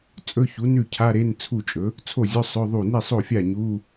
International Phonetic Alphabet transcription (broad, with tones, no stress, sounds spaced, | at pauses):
t͡sʼ ɵ˧˥˧ ç u˩˥ n ʉ˥˩ cʰ a˧˥˧ ɾ e˧˥˧ n t͡sʰ u˥˩ t͡ʃʼ ɵ˩˥ | t͡sʰ o˥˩ zʲ ɵ˧˥˧ sˤ ɵ˧˥˧ ðˤ u˥˩ n i˥˩ sˤ o˥˩ fʲ a˥˩ ɲ u˧˥˧